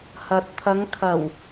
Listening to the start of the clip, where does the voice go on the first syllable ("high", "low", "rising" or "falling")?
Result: low